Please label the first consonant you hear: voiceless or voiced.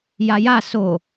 voiced